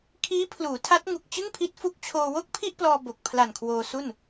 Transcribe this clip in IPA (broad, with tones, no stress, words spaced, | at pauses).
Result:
kʰiː˦˥pʰluː˩˦tʰa˦˥t̚ŋu˨˩k̚ t͡ɕɯ˥˩ŋpʰi˦˥t̚fu˦˥k̚t͡ɕʰoː˧ wo˥˩k̚pʰi˥˩ʔplɔː˧ bo˨˩k̚pʰla˨˩nkʰwoː˧ su˥˩n